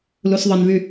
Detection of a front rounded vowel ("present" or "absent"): present